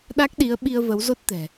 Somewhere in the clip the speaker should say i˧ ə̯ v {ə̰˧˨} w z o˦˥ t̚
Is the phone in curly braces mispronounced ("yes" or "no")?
yes